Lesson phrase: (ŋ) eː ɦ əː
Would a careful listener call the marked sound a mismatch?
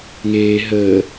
no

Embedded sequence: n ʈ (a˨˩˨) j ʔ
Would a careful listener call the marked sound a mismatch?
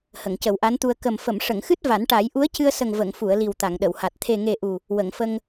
yes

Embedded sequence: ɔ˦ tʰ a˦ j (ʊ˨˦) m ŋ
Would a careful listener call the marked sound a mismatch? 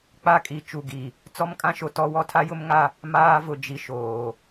yes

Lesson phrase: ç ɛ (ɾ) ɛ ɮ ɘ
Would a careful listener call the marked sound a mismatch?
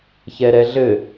no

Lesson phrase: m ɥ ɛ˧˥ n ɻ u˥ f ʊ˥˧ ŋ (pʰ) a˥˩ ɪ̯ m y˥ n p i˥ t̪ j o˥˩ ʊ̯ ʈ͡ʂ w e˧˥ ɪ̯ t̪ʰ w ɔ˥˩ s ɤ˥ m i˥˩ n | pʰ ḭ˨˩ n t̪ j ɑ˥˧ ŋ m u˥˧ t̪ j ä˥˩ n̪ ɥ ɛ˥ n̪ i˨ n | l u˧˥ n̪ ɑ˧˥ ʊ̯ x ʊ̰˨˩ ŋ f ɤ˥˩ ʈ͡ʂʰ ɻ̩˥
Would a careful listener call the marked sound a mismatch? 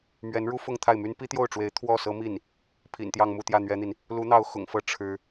yes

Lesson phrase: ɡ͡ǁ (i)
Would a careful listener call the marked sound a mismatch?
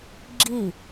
no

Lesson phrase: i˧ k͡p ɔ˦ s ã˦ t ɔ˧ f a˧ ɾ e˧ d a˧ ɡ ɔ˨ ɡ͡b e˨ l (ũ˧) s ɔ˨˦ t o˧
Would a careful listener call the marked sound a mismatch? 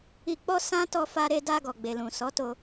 yes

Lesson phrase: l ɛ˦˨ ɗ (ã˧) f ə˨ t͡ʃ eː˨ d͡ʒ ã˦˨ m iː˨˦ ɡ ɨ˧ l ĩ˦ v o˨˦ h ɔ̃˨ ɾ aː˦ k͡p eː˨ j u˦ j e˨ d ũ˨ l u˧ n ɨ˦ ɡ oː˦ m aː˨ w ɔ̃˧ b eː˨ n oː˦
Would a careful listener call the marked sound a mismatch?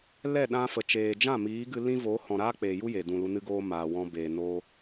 no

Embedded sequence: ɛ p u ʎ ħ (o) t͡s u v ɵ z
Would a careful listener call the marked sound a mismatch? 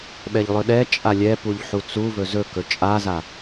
yes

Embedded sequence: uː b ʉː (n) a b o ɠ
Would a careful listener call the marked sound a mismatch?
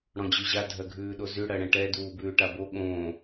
yes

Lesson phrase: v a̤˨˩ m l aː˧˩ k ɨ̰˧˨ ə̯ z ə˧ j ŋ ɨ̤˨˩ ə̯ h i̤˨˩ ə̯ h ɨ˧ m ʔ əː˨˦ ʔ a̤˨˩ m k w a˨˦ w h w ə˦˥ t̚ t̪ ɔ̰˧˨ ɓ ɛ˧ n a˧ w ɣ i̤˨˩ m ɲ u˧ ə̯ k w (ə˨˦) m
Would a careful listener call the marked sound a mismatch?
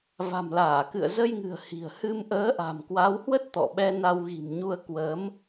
no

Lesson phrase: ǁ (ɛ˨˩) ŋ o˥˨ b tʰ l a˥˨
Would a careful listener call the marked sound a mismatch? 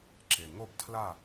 yes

